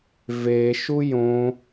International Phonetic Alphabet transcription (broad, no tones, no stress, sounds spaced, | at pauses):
v e ʃ u j õ